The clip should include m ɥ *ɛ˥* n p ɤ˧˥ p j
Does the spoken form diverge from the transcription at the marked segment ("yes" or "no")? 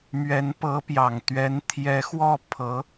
yes